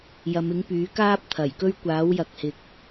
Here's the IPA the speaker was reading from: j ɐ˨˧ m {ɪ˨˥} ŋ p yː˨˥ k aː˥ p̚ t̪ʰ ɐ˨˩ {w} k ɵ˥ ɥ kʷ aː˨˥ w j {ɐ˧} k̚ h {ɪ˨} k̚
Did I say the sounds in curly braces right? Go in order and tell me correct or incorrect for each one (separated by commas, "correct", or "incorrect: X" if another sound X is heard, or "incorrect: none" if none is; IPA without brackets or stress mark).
correct, incorrect: j, incorrect: ɐ˨, correct